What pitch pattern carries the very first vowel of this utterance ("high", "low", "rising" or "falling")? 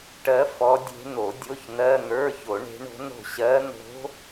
rising